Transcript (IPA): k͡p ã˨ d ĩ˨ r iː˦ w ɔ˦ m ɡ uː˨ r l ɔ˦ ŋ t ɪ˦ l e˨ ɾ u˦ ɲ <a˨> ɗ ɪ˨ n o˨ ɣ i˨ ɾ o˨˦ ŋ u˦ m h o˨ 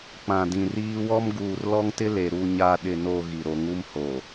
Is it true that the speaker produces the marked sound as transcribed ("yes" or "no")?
no